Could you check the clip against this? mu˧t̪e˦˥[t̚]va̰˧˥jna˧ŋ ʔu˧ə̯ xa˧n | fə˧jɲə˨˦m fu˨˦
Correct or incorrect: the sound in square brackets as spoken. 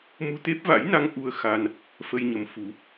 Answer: incorrect: p̚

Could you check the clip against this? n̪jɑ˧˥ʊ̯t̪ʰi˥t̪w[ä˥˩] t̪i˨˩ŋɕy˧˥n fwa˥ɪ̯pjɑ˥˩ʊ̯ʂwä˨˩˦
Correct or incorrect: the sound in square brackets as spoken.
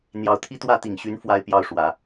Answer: correct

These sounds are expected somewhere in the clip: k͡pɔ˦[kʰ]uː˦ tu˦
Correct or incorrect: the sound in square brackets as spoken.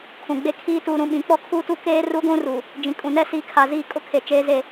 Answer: correct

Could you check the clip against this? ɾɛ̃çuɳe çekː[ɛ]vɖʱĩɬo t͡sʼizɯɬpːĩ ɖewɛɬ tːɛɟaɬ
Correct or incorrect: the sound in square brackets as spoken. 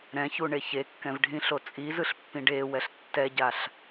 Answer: incorrect: ɛ̃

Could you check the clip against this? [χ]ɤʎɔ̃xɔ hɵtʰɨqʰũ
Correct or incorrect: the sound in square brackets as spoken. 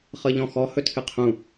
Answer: correct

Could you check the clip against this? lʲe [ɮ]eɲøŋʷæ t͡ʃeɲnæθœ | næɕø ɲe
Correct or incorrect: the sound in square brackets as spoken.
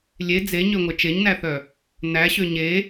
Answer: incorrect: d͡z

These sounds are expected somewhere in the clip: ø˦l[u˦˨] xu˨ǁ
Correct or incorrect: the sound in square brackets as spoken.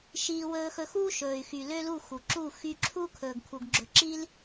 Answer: correct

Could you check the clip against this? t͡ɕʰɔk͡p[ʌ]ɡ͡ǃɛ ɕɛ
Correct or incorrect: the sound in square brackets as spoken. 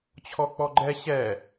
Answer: incorrect: ɔ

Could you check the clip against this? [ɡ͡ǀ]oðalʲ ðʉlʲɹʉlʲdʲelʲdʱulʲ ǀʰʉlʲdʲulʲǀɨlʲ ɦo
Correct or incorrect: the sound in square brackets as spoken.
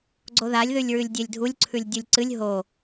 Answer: correct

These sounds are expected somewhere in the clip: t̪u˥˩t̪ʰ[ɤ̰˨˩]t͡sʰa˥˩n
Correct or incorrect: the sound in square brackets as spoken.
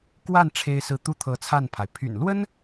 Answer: incorrect: ɤ˧˥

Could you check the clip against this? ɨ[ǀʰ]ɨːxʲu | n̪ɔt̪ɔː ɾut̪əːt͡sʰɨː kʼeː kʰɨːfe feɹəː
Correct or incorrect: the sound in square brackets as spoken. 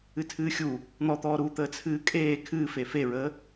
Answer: incorrect: tʰ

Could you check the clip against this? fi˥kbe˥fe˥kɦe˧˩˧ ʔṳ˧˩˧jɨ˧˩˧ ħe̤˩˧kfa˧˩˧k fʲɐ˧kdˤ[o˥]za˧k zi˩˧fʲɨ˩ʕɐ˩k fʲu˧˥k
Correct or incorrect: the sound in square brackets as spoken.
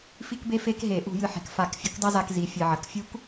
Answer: correct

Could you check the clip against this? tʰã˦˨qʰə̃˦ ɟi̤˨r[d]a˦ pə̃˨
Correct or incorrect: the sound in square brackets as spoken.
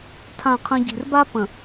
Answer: incorrect: b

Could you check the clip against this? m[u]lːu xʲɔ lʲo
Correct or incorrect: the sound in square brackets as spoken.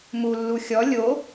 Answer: correct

